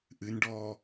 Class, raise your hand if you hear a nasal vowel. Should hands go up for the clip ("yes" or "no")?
no